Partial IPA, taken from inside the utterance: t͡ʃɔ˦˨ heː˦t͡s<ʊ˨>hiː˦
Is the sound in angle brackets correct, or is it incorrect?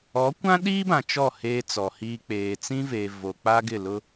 incorrect